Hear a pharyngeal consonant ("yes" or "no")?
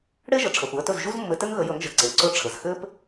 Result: no